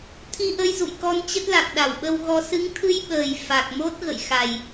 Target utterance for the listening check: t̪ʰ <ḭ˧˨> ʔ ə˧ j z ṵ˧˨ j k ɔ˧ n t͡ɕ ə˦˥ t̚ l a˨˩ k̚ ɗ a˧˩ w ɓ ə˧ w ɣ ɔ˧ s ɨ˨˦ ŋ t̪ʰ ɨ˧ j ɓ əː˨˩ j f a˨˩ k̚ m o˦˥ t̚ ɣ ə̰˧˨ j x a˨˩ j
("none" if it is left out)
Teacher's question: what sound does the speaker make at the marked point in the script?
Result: i˧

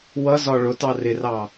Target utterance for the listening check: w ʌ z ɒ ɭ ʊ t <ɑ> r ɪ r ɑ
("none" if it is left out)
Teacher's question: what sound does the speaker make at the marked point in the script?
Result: ɑ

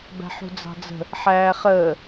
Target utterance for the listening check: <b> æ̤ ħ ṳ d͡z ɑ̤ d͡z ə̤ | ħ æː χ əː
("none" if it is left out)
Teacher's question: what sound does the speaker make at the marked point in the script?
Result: b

